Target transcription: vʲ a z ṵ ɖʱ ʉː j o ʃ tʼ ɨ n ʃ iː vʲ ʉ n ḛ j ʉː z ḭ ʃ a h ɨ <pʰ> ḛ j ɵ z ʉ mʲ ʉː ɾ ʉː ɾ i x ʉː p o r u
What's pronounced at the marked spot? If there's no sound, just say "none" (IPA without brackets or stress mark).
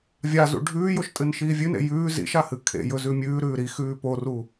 kʰ